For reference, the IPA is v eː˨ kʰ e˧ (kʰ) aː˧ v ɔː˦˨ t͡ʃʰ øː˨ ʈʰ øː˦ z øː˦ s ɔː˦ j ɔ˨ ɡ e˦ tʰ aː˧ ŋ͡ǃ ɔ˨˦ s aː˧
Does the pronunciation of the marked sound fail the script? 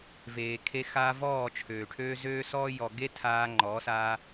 yes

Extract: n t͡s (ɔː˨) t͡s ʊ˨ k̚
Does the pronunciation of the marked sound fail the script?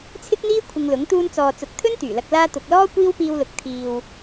no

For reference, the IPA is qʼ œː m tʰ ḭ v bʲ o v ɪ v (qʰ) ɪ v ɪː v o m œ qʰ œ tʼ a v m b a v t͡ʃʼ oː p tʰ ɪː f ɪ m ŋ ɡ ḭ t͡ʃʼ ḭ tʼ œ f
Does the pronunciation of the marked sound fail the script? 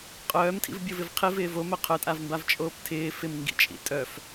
no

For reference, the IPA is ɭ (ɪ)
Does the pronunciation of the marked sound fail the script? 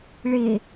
no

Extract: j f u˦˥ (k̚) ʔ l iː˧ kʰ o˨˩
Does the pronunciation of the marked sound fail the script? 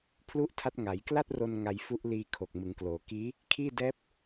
yes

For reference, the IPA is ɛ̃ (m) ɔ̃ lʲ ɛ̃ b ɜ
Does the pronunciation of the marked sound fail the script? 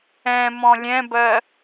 no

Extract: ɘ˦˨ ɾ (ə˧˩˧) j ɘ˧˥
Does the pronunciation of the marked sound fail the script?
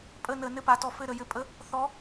no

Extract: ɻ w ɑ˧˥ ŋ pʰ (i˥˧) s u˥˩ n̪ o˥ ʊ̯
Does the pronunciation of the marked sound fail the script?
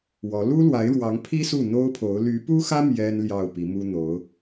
yes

